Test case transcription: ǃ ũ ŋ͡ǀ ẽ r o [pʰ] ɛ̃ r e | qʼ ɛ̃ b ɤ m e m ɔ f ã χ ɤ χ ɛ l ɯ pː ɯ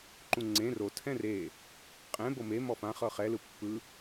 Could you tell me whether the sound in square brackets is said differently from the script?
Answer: yes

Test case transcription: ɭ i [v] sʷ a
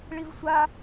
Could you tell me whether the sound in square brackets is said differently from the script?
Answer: no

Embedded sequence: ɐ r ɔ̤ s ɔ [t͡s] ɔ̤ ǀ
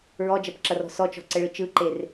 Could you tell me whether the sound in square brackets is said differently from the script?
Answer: yes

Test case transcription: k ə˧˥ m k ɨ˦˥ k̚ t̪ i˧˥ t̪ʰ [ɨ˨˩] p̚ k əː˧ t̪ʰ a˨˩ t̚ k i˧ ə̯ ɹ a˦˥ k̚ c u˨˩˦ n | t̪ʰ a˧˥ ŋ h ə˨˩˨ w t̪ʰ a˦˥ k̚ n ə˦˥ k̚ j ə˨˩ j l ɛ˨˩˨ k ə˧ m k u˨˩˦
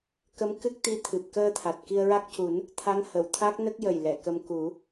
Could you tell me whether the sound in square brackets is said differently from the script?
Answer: no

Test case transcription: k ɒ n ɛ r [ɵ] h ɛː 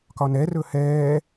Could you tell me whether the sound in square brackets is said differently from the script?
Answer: no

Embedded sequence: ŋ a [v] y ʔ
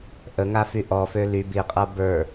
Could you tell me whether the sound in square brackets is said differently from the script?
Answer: yes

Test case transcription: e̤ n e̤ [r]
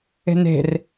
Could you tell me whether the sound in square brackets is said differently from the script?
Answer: no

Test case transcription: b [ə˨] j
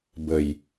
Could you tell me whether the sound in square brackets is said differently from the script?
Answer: no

